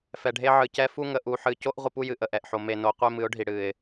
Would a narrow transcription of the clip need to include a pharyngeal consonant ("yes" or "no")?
yes